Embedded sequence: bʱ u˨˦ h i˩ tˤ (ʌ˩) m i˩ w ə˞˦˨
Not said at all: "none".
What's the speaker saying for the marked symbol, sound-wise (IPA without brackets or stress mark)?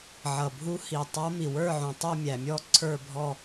ʌ˨˦